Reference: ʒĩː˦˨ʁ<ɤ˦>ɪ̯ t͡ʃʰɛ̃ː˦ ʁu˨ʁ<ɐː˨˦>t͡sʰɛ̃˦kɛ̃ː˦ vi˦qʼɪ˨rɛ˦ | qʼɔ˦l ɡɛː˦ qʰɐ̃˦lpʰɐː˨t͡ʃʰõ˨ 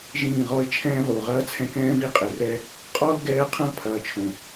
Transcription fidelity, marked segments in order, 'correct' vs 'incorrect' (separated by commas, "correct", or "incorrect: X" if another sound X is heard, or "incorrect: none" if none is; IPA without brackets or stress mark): incorrect: ɔ˦, incorrect: ɐː˦